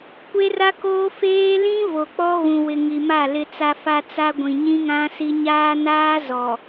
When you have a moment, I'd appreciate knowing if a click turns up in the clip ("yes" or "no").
no